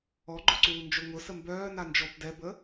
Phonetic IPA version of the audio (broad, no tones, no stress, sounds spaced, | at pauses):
ɔ ɡ͡ǃ ʊ ǀ uː n d͡ʒ ɵ ŋ ʊ s ə m b œː n a n d͡ʒ ɔ b d ɛ b ə